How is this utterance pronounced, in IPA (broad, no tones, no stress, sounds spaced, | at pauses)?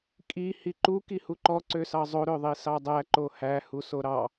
kʼ i h i ǃ u k i h u ǃ ɔ ǀ ø s ɑ zˤ o ɾ ø ðˤ i s ɑ dˤ æ ǃ o h æ h u s o ɾ ɑ